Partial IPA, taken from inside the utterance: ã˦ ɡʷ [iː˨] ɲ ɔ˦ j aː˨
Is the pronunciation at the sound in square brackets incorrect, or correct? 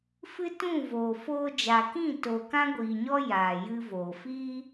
correct